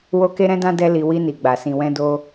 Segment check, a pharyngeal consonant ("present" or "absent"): absent